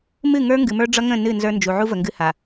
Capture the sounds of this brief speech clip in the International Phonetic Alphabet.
m ɨ˦˨ ŋ ə˞˦ ŋ ɡ ɨ˨ m ə˞˦ ɖ͡ʐ ʌ˦ ŋ ə̃˦˨ n ɨ˦˨ n z ə˞˦ n d͡ʒ u˨ ʕ u˦ v ə˨ ŋ ɡ ɨ˦ h a˨

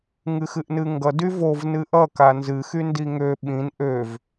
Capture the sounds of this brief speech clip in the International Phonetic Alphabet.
ŋ ɨ x ɨ ʔ n ɨ ŋ ɡ ʌ d y v o v n ɨ ʔ ʌ k a n z ɨ x y n d i ŋ ø ɓ ĩ n ʔ ø v

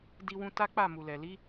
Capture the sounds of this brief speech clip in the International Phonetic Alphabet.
d i˧ w ũ˧ t a˦ k͡p a˦˨ m u˨ l ɛ˨ l i˨˦

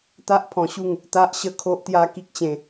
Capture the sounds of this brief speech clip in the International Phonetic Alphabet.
t̪ a˦ ʔ pʰ ɔ̃˧ ɕ u˥˧ ŋ | t̪ a˦ ʔ ɕ ə˥˧ kʰ o˦ ʔ t̪ j a˦ k i˦ k̚ t͡ɕ ẽ˧

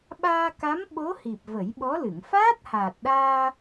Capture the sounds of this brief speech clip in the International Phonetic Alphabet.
ɓ aː˧ k a˧˥ m ɓ o˧˥ h i˨˩ p̚ v ə˨˩˦ j ɓ ɔ˧˥ l ɨ˨˩˨ ŋ f aː˦˥ t̚ h aː˨˩ t̚ ɗ aː˧

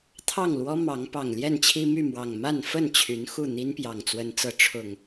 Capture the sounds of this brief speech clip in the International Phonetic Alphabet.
t̪ʰ ɑ˥˨ ŋ l w ɔ˦ m ɑ˨˦ ŋ p ɑ˨˩ ŋ l j ɛ˥˨ n t͡ɕʰ i˦ m y˥˨ m w ɑ˨˩ ŋ m a˥˨ n f ə˥˨ n t͡ɕʰ y˨˦ n x u˥˨ n̪ i˦ n p j ɑ˨˩ ŋ t͡s w ə˨˦ n t͡s ɤ˨˦ ʈ͡ʂʰ ʊ˨˩ ŋ

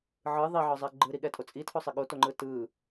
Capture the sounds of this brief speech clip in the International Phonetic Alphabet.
ʕ ɯ ðˤ i ʕ ɒ zˤ ɛ ɡ͡ǃ ɯ ɾ i ɠ ɛ tʼ o t͡sʼ i tʰ o sˤ i ɠ o t o ŋ͡ǃ ɯ t ɯ

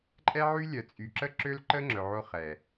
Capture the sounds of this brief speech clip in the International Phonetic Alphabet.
ǃʼ ɛ˦ ʕ y˦ lʲ œ˨ t͡sʼ y˨ ǁ ə˦ ǁ ø˦ l ǃ ə˦ ŋ͡ǁ œ˨ ʕ o˦ χ ɛ˨

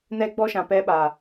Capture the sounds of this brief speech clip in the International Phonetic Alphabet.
n ɛ˦ ɡ͡b ɔ˦ ʃ ã˨ p ɛ˦ ɓ a˨

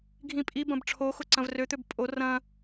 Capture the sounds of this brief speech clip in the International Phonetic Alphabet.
ɡʱ ĩ pʼ i b ɐ̃ b ʈ͡ʂʰ o x ʊ ǀ ɐ̃ v r ø t̪ ø b pʼ o r ɐ̃

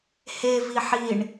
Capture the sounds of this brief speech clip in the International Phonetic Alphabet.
h e v i ħ i ɳ

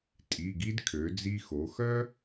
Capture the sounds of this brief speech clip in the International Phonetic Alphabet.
tʼ i˩˧˩ ɡ i˥ d kʰ ø˩˧ d͡z i˧ x o˩˧ x œ˥

